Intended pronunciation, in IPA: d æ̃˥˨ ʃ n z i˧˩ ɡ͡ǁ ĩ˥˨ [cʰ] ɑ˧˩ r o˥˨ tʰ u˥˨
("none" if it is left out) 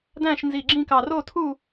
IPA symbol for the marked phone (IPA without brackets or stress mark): k